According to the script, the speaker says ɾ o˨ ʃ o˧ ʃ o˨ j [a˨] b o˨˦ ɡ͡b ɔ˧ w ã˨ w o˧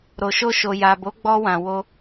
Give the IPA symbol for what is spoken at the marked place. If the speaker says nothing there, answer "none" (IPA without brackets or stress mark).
a˨